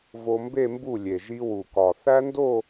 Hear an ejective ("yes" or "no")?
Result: no